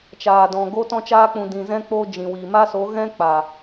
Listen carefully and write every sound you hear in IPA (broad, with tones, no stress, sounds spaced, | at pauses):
t͡ʃ aː˨ d ɔ̃˨ ɡ o˦ t ɔ̃˧ t͡ʃ aː˧ k͡p ũ˨ d ĩ˨ z ɛ̃˧ k͡p o˧ d͡ʒ ĩ˨ w iː˨ m a˦ s o˨˦ ɣ ɛ̃˦ k͡p aː˨